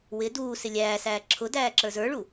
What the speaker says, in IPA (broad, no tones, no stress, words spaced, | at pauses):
wɪ duː sɪlʲæːsæː ǁʰʊdæː ǁə˞zə˞ɭu